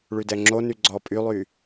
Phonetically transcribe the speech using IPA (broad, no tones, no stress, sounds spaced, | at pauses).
ɭ y d ɛ ŋ͡ǁ o n y ɡ͡ǀ ɔ pʼ y lˠ y